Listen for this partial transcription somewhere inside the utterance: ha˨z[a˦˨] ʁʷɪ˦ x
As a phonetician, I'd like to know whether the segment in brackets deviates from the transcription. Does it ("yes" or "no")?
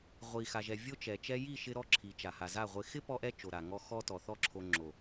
no